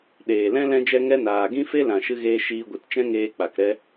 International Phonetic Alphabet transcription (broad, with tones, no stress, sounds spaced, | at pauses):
ɗ eː˨ l ɛ̃˦ l ɛ̃˦ d͡ʒ ɛ˦ ŋ ɛ˦ n aː˨ ɡ ĩ˦ f e˦ l ã˨ ʃ ɨ˧ ɣ eː˧ ʃ iː˧ ɡʷ ɨ˨˦ t t͡ʃ ɛ̃˦ ŋ eː˧ k͡p a˨ k ɾ ɛ˦